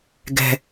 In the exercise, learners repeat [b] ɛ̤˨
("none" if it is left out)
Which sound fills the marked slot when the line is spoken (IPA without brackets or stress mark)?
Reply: ɡ